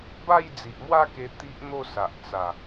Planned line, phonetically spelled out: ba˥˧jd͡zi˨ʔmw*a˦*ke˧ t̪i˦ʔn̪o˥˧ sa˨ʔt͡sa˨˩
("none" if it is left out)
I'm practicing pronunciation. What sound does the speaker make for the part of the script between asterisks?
a˥˧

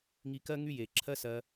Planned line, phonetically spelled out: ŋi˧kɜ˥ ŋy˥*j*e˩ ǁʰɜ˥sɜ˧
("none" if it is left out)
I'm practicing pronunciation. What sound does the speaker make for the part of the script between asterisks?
j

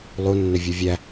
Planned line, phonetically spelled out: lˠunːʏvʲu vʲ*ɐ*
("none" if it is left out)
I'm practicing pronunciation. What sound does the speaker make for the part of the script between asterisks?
æ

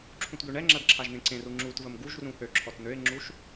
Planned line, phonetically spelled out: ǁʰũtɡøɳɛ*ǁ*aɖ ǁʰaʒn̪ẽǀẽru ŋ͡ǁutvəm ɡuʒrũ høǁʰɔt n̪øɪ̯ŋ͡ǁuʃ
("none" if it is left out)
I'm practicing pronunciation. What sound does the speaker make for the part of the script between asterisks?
ŋ͡ǁ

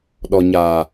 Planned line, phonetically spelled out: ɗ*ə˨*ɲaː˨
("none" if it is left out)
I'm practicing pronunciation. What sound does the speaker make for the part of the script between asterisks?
ɔ˨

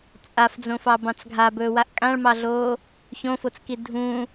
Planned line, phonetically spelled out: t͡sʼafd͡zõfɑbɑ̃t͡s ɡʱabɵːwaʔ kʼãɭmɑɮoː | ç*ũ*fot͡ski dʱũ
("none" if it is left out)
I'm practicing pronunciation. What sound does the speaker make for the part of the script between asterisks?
õ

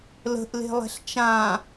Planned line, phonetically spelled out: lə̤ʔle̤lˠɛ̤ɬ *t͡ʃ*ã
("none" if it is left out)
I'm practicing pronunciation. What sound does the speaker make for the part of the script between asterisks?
t͡ʃ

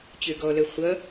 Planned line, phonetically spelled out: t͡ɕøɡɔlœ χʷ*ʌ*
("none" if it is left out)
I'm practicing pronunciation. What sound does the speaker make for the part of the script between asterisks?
ʌ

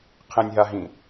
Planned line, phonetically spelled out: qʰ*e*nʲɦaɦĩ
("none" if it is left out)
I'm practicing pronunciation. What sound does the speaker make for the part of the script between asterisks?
ẽ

